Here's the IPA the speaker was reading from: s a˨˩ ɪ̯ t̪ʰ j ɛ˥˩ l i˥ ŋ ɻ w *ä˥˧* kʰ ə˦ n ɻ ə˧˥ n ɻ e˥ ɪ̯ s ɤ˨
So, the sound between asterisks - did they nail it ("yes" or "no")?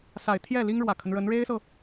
no